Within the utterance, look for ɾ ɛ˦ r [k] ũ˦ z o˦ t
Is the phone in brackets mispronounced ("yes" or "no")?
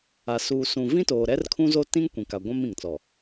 yes